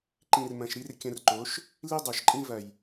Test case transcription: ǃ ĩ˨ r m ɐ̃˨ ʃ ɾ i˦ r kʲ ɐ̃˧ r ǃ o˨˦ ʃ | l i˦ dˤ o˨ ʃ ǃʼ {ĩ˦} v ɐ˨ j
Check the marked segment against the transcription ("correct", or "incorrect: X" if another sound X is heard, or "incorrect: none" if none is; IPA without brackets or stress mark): correct